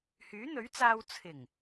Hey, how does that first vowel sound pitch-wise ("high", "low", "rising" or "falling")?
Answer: rising